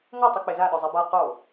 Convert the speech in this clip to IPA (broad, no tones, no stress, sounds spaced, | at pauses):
ŋ o tˤ u k͡p e z a ɗ ɔ zˤ ɛ b a q o